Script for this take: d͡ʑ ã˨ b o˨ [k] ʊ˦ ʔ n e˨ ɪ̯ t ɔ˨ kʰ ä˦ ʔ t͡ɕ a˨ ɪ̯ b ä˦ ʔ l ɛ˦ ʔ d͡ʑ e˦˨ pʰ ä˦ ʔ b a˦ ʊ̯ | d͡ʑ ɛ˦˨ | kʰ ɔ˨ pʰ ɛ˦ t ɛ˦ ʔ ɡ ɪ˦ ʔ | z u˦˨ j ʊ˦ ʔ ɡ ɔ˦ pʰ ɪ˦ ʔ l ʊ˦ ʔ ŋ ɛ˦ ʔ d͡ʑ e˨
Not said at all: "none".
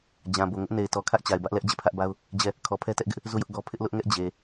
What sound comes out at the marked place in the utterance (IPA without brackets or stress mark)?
ŋ